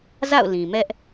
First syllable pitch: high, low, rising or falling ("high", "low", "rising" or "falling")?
falling